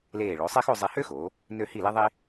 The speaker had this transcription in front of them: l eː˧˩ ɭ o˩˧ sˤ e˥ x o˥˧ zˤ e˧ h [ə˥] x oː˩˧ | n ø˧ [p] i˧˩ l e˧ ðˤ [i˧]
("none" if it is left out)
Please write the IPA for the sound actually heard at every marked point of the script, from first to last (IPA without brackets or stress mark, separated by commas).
ø˥, h, i˧